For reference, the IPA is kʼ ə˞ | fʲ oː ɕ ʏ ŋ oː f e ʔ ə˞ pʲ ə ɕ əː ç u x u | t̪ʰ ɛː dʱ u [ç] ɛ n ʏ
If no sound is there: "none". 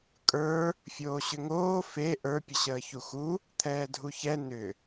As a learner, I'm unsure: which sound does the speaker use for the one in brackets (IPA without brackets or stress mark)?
ç